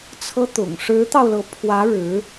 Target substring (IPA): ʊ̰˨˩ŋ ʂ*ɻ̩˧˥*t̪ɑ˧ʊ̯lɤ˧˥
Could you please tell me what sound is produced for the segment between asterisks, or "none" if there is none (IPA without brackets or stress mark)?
ɻ̩˧˥